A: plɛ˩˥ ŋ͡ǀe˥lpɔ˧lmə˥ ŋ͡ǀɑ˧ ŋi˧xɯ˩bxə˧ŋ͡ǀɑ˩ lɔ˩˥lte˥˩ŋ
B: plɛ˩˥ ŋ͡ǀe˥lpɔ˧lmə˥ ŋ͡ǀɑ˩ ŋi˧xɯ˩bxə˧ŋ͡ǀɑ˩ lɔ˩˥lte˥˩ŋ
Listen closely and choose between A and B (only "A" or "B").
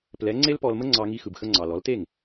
A